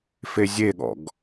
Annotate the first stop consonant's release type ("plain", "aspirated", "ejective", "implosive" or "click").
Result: implosive